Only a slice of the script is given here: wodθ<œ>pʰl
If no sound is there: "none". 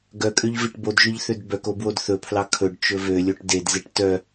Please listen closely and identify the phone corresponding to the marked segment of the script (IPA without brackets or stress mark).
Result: ɵ